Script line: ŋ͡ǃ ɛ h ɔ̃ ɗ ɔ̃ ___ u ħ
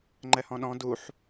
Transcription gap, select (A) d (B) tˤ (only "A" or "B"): A